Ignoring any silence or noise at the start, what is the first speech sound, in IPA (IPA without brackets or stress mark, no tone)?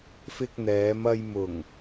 f